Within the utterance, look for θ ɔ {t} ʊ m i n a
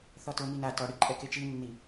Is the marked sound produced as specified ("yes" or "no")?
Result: yes